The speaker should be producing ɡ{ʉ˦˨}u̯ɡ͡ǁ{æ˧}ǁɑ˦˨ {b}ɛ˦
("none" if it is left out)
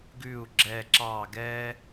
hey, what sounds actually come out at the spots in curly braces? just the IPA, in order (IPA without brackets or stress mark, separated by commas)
ʉ˦˨, ɛ˧, ɡ